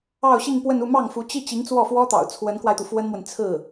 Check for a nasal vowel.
absent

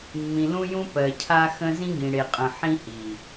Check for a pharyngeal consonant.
present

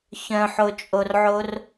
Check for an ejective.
present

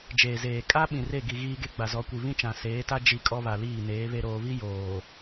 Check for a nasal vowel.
present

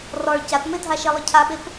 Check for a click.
absent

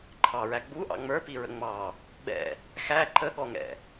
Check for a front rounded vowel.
absent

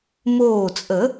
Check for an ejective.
present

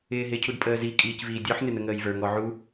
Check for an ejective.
present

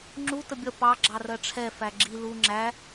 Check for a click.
present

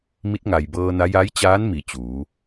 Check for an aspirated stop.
absent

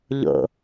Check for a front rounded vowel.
absent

